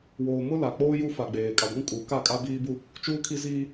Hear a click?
no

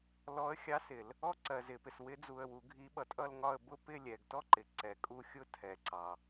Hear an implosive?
yes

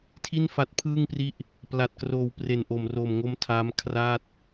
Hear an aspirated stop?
yes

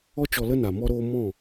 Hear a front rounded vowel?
no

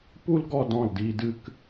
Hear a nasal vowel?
yes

